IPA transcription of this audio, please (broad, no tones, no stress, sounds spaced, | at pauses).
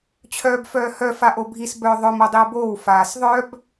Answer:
t͡ɕʰ œː b f œː h œ f a ʔ o bʱ i s b œ ðˤ œ m o dˤ i u̯ b oː w f aː s ðˤ œ b